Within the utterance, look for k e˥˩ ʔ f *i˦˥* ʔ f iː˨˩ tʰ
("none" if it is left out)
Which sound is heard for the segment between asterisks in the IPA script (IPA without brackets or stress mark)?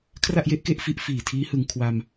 i˦˥